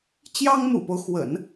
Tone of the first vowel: high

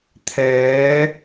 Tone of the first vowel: rising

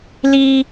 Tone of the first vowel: high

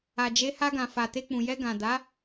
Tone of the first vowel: low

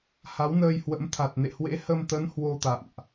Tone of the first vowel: rising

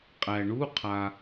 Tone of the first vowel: low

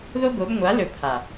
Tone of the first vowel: high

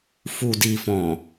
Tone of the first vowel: low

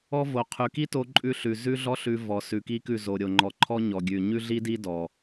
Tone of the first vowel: high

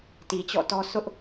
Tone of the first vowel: low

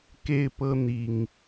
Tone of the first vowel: high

